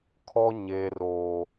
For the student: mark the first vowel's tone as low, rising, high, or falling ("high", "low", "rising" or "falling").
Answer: high